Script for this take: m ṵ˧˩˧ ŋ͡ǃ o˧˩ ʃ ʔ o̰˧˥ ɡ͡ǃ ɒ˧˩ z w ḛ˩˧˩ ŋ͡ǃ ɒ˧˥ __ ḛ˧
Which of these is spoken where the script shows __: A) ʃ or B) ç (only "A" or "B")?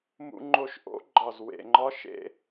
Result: A